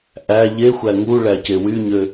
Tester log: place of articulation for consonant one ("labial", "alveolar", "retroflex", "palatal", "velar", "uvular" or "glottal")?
glottal